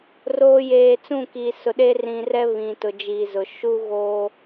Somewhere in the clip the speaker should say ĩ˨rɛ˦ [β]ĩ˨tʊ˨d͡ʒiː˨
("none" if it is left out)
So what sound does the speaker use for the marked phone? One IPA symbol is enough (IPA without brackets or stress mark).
β